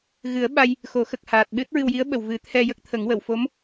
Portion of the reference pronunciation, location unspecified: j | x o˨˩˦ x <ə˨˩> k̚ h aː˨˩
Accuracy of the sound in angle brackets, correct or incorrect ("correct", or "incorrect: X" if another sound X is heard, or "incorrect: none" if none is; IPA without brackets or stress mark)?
correct